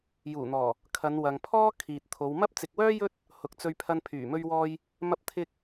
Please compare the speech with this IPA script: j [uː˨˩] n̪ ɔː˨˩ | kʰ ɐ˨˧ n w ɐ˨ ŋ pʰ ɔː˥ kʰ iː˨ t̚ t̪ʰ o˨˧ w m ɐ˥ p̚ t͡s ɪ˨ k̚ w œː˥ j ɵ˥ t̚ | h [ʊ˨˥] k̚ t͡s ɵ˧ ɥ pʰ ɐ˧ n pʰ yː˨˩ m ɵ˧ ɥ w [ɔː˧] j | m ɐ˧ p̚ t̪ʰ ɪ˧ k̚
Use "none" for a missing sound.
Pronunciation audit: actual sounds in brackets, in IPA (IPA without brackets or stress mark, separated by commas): uː˨˩, ʊ˨˥, ɔː˧